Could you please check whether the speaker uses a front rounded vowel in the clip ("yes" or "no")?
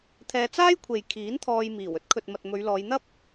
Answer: no